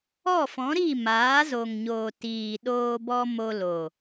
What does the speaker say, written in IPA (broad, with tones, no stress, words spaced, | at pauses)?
ɔ˦˨fɔ̃˨˦ɾi˦˨ maː˨˦zo˨ŋɲo˨ tiː˨ɗoː˧bɔ˧ mo˧lo˨